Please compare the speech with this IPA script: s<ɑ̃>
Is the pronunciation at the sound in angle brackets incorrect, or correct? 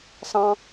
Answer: correct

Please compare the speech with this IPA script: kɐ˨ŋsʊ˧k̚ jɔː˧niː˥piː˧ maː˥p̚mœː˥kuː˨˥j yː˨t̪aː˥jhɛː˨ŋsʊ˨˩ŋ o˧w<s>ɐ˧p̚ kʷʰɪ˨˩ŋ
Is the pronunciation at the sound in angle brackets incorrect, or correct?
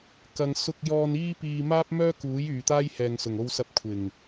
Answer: correct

